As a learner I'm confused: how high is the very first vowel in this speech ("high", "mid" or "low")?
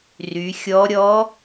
high